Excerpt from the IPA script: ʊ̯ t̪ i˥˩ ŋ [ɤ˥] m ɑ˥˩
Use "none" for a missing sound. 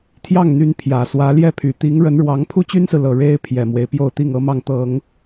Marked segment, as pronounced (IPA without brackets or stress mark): ɤ˥